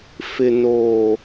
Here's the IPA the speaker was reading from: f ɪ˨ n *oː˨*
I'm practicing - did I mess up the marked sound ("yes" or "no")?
no